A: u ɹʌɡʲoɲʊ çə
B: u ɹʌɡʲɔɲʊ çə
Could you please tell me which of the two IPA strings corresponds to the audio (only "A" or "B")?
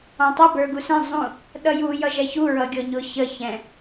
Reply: B